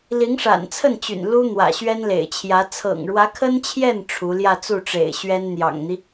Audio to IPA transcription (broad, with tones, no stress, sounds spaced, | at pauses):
l i˧˥ ŋ ʂ a̰˨˩ n t͡sʰ ə˥˩ n t͡ɕ y̰˨˩ n l u˥ n̪ w ä̰˨˩ ɕ ɥ ɛ˥ n l ḛ˨˩ ɪ̯ t͡ɕʰ j ä˧˥ t͡sʰ ɤ̰˨˩ ŋ ɻ w ä˧˥ kʰ ə˥ n t͡ɕʰ j ɛ˥˩ n ʈ͡ʂʰ u˧˥ l j ä˥˧ t͡s u˥˩ ʈ͡ʂ ḛ˨˩ ɪ̯ ɕ ɥ ɛ˥ n n̪ j ɑ̰˨˩ ŋ n̪ i˦